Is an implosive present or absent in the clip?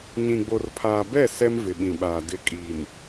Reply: present